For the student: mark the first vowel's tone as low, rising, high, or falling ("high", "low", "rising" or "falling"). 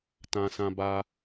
high